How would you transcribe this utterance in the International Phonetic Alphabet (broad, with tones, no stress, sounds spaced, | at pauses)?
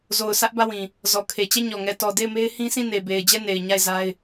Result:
z o˨ ʊ̯ sʰ ä˦ ʔ b ä˦˨ w ĩ˨ | z ɔ˨ kʰ e˨ t͡ɕ ɛ˦˨ ɲ ɔ˨ ŋ ɛ˨ t ɔ˨ d e˦˨ ɪ̯ m e˦ ɪ̯ h ĩ˦ s ĩ˦˨ n e˨ b e˨ ɪ̯ d͡ʑ ɛ˦˨ n e˨ ɪ̯ ɲ a˦˨ ɪ̯ z a˦ ɪ̯